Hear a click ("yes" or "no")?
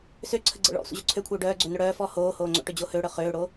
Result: yes